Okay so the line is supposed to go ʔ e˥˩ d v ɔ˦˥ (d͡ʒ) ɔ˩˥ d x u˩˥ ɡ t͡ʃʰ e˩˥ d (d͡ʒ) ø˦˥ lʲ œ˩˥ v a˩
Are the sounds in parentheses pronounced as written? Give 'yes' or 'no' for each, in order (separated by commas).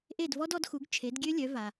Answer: no, no